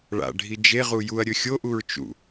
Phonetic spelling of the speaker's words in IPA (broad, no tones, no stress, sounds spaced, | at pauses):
ɭ a̰ ɖʱ i d͡ʒ e ʁ u j u ɐ̯ ɾʲ ɵ xʲ o ʔ u ɹ t͡ʃ ṵ